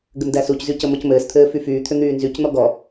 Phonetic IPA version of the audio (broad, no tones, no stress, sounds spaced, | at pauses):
ɡ ɘ m d æ s u c z y c ə m ɔ c m ɘː s t̪ʰ ɘː f y f yː t̪ʰ ʏ n̪ yː n z y c n̪ ɔ ɡ ɔ